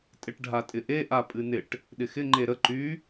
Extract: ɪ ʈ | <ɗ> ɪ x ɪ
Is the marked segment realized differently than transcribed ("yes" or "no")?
no